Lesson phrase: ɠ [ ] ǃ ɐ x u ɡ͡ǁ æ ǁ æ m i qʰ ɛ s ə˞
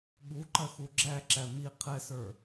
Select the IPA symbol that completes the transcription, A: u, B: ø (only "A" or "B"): A